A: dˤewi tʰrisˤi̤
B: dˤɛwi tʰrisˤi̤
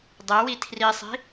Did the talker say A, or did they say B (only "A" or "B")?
B